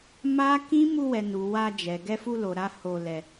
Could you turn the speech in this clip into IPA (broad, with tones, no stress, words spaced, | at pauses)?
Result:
ma˦ kĩ˦ mu˧wɛ˨nu˨ wa˧d͡ʒɛ˨ ɡɛ˧fu˧lo˨ɾa˧ ho˧lɛ˧